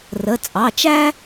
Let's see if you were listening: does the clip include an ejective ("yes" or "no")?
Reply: yes